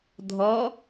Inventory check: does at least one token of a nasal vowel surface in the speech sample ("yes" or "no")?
no